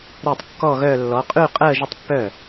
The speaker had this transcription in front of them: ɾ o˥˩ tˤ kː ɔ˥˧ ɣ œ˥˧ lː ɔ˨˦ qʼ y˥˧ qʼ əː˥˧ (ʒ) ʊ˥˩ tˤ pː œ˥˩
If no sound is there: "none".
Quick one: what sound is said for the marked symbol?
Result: ʒ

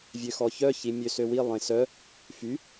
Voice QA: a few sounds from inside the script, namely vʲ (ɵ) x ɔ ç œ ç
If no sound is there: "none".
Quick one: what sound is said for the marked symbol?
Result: ø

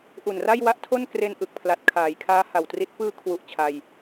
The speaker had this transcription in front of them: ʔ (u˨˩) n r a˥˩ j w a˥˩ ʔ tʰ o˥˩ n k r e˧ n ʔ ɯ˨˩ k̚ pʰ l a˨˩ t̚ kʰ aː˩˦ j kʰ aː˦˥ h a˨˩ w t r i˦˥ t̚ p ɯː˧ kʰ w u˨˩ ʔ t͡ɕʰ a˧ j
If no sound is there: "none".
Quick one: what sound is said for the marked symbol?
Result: u˨˩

